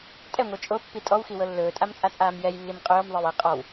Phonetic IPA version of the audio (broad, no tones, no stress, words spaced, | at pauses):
tʼɛŋʷɤ t͡ʃʼopːi tʼɔwxiwɤ lːɵːtʼamt͡sʼat͡sʼaːm jɛjlːim qʼɵːmðˤewe qʼɔw